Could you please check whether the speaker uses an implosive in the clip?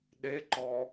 yes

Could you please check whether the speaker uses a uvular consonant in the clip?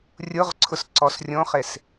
yes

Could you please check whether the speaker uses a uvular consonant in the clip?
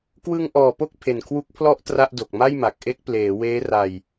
no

